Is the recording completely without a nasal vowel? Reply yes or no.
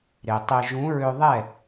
no